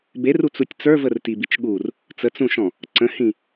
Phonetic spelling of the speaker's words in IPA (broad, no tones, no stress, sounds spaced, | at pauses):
b e r u t͡s u tʲ t͡s ə˞ v ə r t i b i t͡ʃ ɠ u r | t͡s ə t͡s ũ ʃ ɔ̃ | ǀ ə̃ h ĩ